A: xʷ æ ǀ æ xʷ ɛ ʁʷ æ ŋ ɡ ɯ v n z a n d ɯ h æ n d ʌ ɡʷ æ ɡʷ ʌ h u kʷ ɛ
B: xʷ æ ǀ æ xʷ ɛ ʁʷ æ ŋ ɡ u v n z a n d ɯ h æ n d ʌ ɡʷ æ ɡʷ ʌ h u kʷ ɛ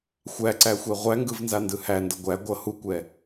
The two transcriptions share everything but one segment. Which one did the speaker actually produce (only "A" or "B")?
A